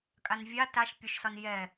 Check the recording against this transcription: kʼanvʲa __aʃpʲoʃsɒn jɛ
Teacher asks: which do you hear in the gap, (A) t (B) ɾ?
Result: A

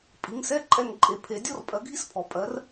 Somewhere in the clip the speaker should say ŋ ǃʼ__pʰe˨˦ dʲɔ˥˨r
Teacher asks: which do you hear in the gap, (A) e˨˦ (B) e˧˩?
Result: A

